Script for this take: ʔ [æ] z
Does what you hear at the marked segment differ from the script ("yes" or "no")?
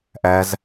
no